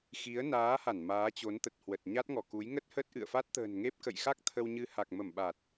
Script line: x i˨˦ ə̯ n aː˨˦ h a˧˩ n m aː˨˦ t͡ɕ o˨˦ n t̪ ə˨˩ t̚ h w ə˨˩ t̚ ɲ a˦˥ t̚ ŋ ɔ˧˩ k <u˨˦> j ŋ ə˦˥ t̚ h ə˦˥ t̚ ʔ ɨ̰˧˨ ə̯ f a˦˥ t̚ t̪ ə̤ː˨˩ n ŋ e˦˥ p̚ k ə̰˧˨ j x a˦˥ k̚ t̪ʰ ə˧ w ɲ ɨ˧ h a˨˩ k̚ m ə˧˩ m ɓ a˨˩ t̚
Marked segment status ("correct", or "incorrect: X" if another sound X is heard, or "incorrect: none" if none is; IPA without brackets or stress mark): correct